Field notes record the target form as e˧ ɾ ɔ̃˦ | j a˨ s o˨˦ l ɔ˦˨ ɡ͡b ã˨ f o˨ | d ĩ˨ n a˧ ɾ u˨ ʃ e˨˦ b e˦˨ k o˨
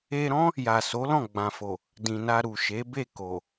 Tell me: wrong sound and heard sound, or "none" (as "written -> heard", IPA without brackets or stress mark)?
ɔ˦˨ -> ɔ̃˦˨